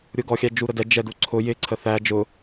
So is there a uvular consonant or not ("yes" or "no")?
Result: no